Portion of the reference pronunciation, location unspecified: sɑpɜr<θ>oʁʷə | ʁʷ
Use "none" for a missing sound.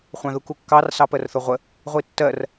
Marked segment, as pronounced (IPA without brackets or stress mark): θ